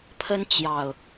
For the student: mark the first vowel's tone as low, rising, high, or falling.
high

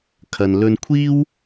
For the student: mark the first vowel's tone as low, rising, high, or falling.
low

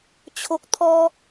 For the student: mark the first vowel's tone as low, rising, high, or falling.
low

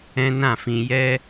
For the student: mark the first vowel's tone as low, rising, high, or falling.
high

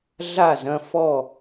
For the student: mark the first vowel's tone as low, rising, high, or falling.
falling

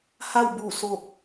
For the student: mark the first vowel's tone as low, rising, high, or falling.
falling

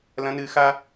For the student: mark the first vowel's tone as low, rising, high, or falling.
high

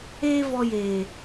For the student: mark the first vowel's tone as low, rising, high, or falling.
high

